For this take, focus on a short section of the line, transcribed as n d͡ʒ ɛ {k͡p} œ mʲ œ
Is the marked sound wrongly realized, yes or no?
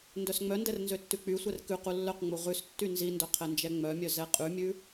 yes